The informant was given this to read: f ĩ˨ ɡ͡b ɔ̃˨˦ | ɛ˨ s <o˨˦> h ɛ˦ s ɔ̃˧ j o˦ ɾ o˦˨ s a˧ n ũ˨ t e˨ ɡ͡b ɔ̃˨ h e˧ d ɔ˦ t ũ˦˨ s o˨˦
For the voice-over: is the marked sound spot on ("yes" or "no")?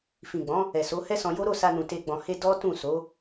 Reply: yes